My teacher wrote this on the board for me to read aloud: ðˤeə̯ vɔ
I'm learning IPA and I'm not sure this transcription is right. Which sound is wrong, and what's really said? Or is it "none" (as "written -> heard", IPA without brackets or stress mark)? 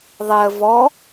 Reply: none